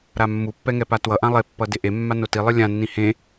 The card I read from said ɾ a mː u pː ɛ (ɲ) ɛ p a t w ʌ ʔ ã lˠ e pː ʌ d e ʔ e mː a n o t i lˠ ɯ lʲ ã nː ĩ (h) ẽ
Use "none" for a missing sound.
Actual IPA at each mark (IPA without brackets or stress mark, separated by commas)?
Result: ŋ, h